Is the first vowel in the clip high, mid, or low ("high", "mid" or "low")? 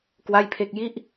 low